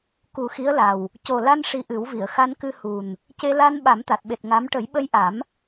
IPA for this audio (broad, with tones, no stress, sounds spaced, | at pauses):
k u˨˩˦ x i˧˥ ə̯ l a˨˩ w | c o˨˩ l a˧ n ʂ i˧ ʔ ɨ˨˩˦ w v i˨˩˨ ə̯ x a˧ n k ɨ˧ h u˨˩ n | c e˧ l a˧ n ɓ a˨˩˦ m t̪ a˨˩ t̚ ɓ e˨˩ t̚ ŋ a˧˥ m ʈ ə˨˩˦ j ɓ ə˧ j ʔ a˨˩˦ m